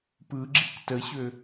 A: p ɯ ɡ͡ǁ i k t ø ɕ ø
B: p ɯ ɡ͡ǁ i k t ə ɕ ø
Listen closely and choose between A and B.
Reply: B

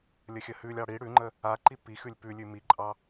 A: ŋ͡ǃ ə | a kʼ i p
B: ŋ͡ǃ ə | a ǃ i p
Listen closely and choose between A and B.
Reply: B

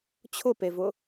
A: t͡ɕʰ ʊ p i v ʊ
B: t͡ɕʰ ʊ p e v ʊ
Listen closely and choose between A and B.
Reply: B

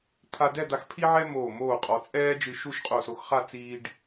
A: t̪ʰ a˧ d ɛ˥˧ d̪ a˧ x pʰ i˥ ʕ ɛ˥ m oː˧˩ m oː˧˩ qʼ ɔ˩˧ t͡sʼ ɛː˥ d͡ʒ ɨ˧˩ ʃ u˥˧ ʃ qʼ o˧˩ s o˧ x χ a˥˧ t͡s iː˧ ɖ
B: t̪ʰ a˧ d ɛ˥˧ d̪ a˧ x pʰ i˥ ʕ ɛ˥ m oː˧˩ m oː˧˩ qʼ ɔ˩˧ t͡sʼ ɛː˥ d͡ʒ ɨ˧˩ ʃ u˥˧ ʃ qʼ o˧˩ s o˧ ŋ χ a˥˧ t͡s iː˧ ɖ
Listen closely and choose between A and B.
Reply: A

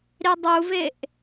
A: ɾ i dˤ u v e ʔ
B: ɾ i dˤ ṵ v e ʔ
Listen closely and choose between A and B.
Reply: A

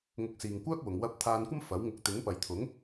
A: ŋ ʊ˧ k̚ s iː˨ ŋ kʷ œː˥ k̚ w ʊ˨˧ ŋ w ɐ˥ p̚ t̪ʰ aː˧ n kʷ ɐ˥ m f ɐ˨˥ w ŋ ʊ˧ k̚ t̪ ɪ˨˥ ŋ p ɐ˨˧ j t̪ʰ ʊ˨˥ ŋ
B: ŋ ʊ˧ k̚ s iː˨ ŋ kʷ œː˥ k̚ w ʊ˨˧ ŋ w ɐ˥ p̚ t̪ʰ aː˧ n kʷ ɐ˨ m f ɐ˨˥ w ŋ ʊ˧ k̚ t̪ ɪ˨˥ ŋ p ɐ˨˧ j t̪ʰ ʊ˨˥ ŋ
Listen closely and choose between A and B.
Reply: A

